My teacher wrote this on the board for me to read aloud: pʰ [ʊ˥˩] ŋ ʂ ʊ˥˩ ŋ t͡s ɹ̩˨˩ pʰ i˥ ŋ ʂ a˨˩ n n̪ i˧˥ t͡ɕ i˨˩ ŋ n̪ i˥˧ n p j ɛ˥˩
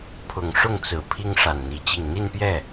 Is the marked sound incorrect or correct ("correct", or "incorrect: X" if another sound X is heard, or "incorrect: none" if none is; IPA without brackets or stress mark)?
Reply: incorrect: ʊ˨˩